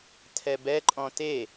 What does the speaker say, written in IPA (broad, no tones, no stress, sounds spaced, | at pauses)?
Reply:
tʰ ɛ b ɛ ǃʼ ɔ̃ t e